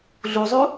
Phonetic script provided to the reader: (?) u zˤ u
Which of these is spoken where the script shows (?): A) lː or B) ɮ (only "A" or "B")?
B